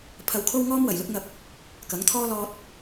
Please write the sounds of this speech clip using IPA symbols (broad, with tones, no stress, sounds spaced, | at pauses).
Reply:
pʰ ɐ˧ w kʰ o˥ w ŋ ɔː˥ m w ɐ˨˩ j l ʊ˥ k̚ ŋ ɐ˧ p̚ | k ɐ˨˥ ŋ t̪ʰ ɔː˥ l ɔː˧ t̚